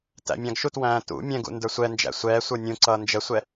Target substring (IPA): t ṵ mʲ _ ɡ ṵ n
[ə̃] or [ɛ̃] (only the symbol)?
ɛ̃